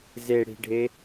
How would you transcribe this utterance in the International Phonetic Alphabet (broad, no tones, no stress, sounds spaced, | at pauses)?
z e ɽ i̤ ɖʱ e